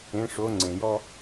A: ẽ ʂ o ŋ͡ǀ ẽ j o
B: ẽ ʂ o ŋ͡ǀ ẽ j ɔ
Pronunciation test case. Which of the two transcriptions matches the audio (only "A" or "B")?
B